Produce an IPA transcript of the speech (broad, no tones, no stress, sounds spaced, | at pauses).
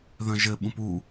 ð œ̃ ʒ ɘ ɓ ũ p u